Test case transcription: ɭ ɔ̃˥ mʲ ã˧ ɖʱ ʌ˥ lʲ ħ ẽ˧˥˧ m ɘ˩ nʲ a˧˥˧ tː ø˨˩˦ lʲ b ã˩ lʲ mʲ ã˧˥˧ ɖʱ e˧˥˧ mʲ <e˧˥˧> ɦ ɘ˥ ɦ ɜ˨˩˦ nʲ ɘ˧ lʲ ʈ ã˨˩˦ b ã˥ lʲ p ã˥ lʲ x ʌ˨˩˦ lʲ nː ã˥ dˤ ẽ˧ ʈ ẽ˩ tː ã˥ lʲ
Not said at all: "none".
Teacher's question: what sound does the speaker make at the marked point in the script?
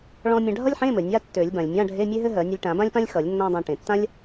e˥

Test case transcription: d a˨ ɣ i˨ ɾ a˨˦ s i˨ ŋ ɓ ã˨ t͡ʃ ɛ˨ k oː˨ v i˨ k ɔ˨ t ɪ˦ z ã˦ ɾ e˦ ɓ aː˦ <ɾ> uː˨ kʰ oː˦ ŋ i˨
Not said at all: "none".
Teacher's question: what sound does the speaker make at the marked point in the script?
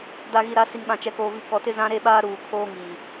ɾ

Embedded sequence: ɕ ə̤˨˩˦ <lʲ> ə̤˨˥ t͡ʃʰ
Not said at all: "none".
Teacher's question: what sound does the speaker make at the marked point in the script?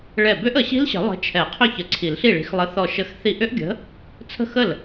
lˠ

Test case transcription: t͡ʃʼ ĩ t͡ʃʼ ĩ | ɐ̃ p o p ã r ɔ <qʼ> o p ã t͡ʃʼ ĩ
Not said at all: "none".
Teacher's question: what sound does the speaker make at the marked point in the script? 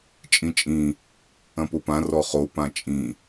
χ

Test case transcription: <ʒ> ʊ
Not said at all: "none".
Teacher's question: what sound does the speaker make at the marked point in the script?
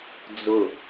d͡z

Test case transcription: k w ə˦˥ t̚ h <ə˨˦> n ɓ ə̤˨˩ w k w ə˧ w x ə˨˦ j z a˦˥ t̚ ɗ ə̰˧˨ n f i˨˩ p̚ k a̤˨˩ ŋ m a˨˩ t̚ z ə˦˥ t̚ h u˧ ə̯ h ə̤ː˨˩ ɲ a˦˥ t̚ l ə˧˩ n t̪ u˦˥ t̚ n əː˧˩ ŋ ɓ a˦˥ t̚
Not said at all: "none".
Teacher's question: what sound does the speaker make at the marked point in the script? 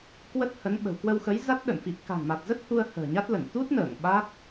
ə˨˦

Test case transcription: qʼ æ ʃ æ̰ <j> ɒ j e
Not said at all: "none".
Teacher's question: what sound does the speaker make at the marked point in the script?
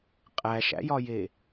j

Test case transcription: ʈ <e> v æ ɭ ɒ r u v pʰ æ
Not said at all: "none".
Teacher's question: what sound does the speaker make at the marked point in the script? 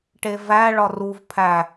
e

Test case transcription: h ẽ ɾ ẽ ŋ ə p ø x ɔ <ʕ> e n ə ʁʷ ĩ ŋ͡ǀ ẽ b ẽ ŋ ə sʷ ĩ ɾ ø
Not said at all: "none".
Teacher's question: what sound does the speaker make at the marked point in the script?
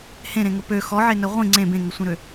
ʕ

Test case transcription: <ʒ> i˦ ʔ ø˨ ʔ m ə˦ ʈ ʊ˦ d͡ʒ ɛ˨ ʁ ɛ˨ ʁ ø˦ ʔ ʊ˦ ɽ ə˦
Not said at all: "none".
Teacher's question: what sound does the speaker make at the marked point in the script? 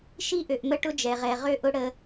ʃ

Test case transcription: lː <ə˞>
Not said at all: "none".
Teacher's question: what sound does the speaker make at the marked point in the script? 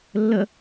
ə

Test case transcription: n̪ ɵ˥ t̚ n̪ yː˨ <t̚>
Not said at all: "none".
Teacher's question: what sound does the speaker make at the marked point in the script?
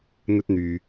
none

